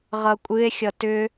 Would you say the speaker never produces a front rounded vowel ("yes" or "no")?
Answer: no